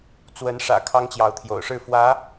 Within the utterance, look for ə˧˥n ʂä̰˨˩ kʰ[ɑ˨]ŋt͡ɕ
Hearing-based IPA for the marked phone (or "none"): ɑ˥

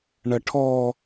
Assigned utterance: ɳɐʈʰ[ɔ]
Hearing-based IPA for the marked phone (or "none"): ɔ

